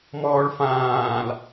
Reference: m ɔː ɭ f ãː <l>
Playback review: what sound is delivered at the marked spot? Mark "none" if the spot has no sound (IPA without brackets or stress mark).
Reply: l